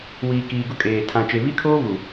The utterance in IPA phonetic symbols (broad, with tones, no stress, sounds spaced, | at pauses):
w iː˨ k iː˨ ɡ ʊ˦ kʼ eː˨ tʰ ã˨ t͡ʃ e˨ β i˦ kʰ oː˦ β u˨